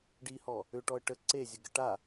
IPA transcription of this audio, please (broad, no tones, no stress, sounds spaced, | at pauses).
ɖ i h ɔ | ʏ ʈ ɔ ə̯ ʈ ə ǀ e zʲ ə ɡ ə ʈ a